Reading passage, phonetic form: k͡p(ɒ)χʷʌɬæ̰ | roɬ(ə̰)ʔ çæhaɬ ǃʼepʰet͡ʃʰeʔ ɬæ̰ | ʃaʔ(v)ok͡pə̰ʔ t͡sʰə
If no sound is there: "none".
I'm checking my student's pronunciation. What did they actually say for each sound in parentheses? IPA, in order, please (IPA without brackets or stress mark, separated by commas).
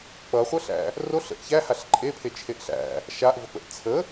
ʌ, ə̰, v